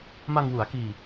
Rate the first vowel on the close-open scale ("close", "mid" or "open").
open